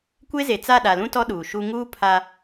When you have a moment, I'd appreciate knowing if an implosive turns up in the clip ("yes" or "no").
yes